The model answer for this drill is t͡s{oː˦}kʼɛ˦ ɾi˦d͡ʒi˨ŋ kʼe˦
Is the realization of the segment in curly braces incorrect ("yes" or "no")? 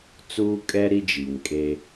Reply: yes